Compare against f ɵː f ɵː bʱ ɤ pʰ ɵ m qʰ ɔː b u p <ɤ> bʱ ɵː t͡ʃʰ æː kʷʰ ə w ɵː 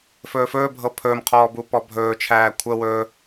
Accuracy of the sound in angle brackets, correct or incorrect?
incorrect